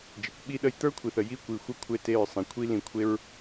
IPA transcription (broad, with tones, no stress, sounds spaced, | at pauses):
d͡ʒ e˨ kʷ ɓ i˧ ɗ ə˧ j t̪ ə˞˦ kʷʰ i˨ θ ə˨ j i˧ kʷ i˨ xʷ ə˧ kʷʰ e˦˨ t e˦˨ ɹ sˤ ĩ˨ kʷʰ i˦ l ĩ˧ kʷʰ e˦ ɹ